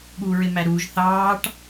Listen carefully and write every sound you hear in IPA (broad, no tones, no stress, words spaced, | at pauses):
ɠuːɹɪmæɾuːʒ θɑːʈ